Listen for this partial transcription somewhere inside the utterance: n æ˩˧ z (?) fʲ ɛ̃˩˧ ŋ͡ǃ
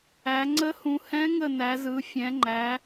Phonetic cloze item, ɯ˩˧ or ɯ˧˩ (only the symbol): ɯ˩˧